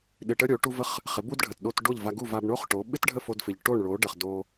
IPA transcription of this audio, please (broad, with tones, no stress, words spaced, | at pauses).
ɗɪ˧ʈə˥ɾʲo˩˥ ʈu˥və˥χ | χɪ˩˥bu˥dɖʱə˩t ɗo˧t ɖo˥˩ʎva˧ɡu˥˩ va˧bɳo˥χʈo˩˥ ɓɪ˥tɖʱə˥˩ fo˧dfɪ˩ʎ ʈo˥˩ɳɭo˩˥ɖə˩χ do˧